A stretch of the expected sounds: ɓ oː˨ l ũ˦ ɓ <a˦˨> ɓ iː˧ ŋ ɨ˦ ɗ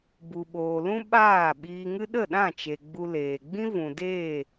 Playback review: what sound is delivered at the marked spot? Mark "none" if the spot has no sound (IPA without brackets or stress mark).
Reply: aː˦˨